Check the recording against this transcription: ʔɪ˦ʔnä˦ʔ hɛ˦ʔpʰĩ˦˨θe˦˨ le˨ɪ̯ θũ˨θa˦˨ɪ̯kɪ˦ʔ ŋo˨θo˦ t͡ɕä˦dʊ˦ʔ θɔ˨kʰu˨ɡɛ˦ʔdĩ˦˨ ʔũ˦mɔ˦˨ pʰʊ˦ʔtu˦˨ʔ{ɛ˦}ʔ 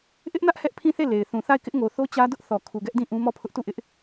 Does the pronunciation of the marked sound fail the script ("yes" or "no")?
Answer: yes